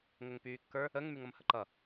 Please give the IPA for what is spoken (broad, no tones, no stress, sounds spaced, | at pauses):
ŋ ə ŋ p yː kː ə˞ | ə ŋ m y ŋ ʌ m h ə ǃ ʌ